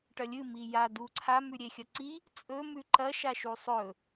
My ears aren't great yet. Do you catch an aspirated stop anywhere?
yes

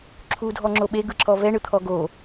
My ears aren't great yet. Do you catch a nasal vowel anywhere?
no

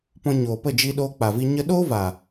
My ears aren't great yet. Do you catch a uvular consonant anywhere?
no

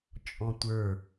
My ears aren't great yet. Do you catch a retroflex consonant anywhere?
no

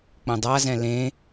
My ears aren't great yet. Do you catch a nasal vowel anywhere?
yes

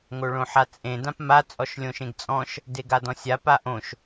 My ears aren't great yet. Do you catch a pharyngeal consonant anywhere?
yes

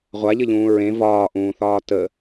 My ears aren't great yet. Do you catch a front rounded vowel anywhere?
no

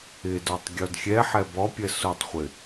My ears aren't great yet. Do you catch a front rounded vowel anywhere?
no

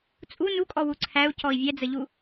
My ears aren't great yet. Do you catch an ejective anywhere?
yes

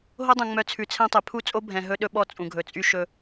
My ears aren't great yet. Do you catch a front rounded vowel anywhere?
yes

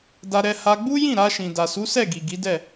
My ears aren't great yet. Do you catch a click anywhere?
no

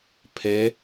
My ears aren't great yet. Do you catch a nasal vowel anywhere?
no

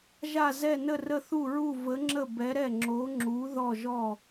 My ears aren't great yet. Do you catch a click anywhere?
yes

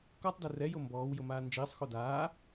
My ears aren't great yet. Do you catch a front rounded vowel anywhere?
no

